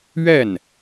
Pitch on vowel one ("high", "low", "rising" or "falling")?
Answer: falling